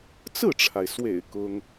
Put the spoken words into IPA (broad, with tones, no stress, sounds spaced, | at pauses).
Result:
t͡s ɹ̩˥˩ ʈ͡ʂʰ a˩ ɪ̯ s w ḛ˨˩ ɪ̯ k ʊ˥ ŋ